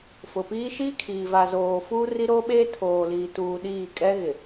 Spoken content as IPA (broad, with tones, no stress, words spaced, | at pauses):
fʊ˨piː˦ ʃiː˦kʰiː˨va˨zoː˨ fuː˦ri˦ɾoː˦ɓeː˦ tʰoː˨liː˨tuː˨ ɗiː˦˨kʼɛ˦ɣɪ˨